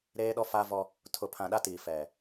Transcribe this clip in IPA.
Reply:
ɾ eː˦ ɗ ɔ˦ f a˦ v ɔ˦ | tʰ ʊ˨ pʰ ã˨ ɗ a˦ t iː˨ f ɛ˨

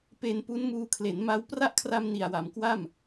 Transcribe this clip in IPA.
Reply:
p e˧ n p u˦˥ n m uː˧ kʰ l e˩˦ n m a˦˥ w p r a˦˥ ʔ kʰ r a˧ m n i˨˩ a̯ w a˩˦ m k w a˥˩ m

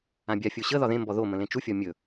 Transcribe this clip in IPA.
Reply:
ã bʲ a fʲ o ɕ ə ð ɒ ð ẽ m b ɔ ð o m ə̃ l ẽ t͡ʃ u fʲ ɒ mʲ ɵ

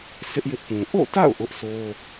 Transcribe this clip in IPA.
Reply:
sʰ ɪ˦ ʔ j ɪ˦ ʔ p ũ˨ ʔ o̰˦˨ t a̰˦˨ ʊ̯ ʔ ʊ˦ ʔ sʰ o˦

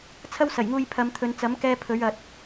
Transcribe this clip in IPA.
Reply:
t͡sʰ ɐ˥ w s ɐ˨˩ j ŋ uː˧ j pʰ ɐ˨˧ m t̪ʰ ɵ˨˧ n t͡s ɐ˨˥ m k ɛː˧ pʰ ɵ˨˥ ɥ ɐ˨ t̚

